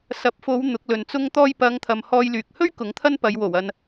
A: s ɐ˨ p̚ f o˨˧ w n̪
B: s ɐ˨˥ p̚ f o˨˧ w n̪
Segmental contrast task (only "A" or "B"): B